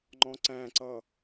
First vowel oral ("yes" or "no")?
no